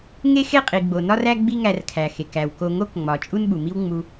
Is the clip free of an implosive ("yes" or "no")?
no